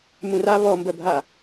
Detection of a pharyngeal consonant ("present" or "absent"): absent